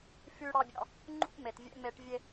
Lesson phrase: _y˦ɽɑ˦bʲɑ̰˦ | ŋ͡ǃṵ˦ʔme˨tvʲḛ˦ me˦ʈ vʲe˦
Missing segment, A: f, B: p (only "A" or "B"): A